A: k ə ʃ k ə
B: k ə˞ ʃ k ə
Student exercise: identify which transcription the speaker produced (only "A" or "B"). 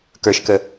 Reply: B